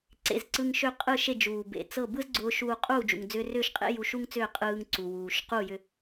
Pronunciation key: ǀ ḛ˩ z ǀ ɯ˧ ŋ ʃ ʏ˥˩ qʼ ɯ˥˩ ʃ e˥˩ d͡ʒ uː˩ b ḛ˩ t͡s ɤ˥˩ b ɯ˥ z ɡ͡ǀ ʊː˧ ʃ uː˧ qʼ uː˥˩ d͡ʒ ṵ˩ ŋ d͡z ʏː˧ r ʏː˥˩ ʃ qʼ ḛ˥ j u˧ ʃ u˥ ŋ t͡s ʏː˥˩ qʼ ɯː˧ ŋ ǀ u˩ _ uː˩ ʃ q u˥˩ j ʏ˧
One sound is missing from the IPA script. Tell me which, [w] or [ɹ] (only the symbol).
w